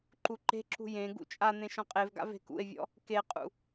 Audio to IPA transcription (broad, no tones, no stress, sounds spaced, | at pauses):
ǃ u ǃ e̤ ǁ ṳ j ẽ ɡ ṵ t͡ʃʼ a n̪ ẽ ʃ ɔ̃ qʼ e v ɡ a̰ v e̤ k ṵ e̯ vʲ ɔ̰ | k e qʼ ṵ